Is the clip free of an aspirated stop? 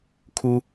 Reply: no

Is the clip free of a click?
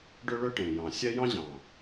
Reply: yes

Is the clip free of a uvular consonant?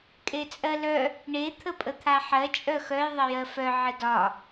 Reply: yes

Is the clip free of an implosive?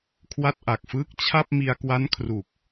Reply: yes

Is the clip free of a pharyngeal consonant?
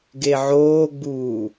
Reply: no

